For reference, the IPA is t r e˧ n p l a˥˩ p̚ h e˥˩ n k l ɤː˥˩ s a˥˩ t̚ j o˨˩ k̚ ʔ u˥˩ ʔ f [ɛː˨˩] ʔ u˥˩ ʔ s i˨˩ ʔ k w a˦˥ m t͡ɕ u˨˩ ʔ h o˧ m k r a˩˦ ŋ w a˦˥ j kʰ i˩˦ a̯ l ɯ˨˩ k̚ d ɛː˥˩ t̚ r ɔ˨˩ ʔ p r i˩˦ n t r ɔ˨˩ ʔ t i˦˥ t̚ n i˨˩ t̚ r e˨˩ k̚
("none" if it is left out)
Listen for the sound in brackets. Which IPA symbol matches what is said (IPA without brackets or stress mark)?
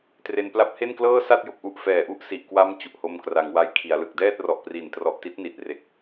ɛː˨˩